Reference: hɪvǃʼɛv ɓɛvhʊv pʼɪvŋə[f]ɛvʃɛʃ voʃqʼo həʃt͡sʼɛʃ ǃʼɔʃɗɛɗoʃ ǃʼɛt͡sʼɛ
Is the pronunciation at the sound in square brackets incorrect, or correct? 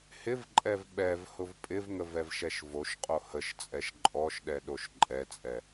incorrect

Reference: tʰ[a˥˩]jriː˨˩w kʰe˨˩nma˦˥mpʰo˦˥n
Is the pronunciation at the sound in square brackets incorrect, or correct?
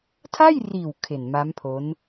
correct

